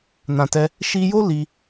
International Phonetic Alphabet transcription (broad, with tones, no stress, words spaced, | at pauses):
nã˨tɛ˧ | ʃi˧jo˦ li˧